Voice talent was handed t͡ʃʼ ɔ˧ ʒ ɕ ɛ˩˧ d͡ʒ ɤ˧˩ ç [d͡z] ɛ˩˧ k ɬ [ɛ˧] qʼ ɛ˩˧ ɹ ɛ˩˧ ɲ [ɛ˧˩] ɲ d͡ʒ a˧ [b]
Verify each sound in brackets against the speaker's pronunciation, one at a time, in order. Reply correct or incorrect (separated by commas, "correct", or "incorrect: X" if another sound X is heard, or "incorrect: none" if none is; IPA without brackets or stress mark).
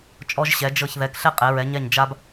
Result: incorrect: ð, correct, correct, correct